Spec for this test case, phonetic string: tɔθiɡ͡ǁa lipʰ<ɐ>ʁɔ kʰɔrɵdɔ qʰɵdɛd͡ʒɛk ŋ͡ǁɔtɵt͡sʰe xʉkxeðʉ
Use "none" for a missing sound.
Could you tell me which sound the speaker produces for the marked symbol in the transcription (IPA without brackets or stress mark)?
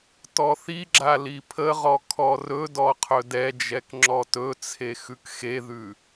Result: ə